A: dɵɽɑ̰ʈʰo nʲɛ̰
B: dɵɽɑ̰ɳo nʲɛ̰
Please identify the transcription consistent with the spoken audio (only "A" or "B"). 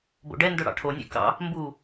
A